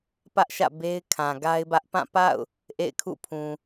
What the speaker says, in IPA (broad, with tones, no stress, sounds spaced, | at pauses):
p ä˦ ʔ ʃ ä̰˦˨ b e˦ ɪ̯ kʰ ã˨ ɡ a˦ ɪ̯ b ä˦ ʔ p ã˦˨ p a̰˦˨ ʊ̯ | ʔ ḛ˦˨ ɪ̯ kʰ ṵ˦˨ pʰ ũ˨